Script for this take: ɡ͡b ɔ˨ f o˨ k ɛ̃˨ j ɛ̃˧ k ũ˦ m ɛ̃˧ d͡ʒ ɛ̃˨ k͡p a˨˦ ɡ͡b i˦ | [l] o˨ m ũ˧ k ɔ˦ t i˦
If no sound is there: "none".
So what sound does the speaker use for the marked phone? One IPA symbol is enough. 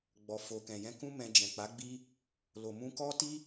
l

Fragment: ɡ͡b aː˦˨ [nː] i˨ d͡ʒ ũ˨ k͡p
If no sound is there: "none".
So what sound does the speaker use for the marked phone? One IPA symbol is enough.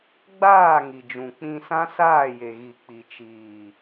ŋ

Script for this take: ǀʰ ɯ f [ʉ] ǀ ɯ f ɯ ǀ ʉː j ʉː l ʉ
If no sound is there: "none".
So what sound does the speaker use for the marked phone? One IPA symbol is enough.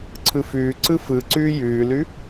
ʉː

